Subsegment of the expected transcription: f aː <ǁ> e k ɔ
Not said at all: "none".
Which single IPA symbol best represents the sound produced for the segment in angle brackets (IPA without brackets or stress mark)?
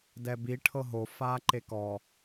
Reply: ǃ